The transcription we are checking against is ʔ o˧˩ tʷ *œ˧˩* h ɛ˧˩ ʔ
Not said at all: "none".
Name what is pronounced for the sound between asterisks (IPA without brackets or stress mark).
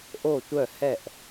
œ˧˩